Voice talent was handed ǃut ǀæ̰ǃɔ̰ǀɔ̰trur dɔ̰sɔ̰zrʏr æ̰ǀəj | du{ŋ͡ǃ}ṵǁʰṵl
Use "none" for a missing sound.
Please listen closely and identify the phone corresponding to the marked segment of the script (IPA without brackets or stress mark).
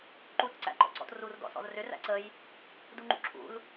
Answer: ŋ͡ǃ